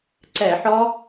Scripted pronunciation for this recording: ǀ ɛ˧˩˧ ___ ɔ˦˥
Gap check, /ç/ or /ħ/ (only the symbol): ħ